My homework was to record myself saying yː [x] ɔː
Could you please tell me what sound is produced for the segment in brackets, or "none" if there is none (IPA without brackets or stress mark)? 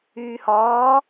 h